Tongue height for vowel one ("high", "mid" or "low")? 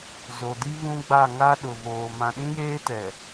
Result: mid